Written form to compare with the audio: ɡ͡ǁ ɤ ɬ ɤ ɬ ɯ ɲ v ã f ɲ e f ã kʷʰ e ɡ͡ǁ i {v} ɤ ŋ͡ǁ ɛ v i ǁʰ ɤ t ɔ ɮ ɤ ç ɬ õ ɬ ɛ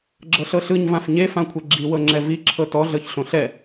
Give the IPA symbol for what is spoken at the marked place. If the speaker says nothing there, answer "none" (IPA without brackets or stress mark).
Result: w